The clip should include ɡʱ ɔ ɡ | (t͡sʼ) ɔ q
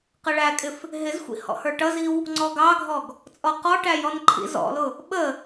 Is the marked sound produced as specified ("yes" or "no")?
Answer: yes